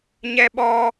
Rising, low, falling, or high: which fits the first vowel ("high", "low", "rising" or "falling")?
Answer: high